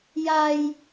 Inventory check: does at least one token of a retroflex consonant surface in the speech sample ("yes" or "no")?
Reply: no